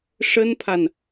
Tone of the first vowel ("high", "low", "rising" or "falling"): high